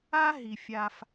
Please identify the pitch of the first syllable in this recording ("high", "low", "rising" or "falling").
high